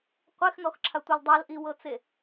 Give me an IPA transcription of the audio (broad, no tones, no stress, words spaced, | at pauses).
qʷexnɔxǁʰatʷɤl dˤalʔiwɤt͡se